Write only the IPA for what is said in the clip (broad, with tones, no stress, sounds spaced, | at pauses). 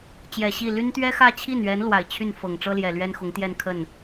t͡ɕ j ɛ˨˩ ɕ i˥˩ l y˥ n t̪ ɥ ɛ˥ x ä˥˧ t͡ɕʰ i˥˩ n ɥ ɛ˧˥ n l w a˨˩ ɪ̯ t͡ɕʰ y˥˩ n f ɤ˨˩ ŋ ʈ͡ʂ ɤ˥ l j ɛ˨˩ l ɥ ɛ˥ n x ʊ˧˥ ŋ t̪ j ɛ˥˧ n kʰ ə˥˩ n